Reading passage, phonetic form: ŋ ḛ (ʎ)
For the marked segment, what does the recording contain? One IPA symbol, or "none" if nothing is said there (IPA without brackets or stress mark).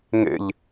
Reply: ʎ